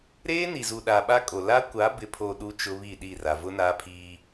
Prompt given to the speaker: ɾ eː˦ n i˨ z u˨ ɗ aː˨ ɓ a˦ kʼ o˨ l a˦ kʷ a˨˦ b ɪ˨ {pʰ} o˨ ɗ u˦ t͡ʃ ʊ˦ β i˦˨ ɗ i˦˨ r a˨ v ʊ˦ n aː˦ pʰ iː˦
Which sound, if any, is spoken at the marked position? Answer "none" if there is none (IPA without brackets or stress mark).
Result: pʰ